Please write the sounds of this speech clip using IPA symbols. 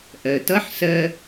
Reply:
ʔ ɜ˩ t ʌ˧˥ ħ s ɜ˧

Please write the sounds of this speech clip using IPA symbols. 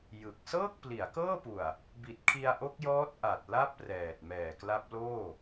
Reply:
j ɯ˨˩ k̚ s ɤː˥˩ k̚ p l i˩˦ a̯ k ɤː˥˩ p u˨˩ a̯ | b i˨˩ t̚ kʰ i˧ a̯ ʔ o˦˥ k̚ j ɔː˦˥ t̚ ʔ a˨˩ t̚ l a˥˩ p̚ r ɛː˨˩ t̚ m ɛː˨˩ k l a˦˥ p̚ l oː˥˩

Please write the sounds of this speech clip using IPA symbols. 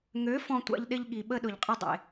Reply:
ŋ ø˨˦ f ɔ̃˧ tʷ a̰˧ ʎ ɗ ɪ˧ ʎ ɠ i˨ ɓ ə˧ ɗ ʊ˨ ʎ qʼ ɪ˧ dˤ ḛ˨

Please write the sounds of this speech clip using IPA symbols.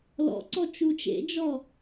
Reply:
l ɔ̰ ǀ ɔ t͡ʃ u t͡ʃ ḛ d͡ʒ ɔ

